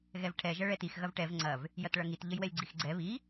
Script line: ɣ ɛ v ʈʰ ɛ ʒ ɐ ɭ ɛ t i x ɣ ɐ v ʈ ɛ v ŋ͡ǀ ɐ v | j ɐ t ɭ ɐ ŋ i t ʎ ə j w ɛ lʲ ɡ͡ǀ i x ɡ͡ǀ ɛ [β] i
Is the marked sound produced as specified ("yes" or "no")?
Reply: yes